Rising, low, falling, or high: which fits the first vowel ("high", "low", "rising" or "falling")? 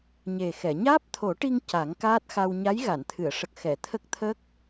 low